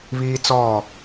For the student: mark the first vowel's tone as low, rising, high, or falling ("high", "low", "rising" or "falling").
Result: high